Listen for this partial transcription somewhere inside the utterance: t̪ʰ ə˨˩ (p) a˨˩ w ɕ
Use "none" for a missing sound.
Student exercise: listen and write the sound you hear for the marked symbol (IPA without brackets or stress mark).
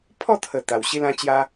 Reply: t̪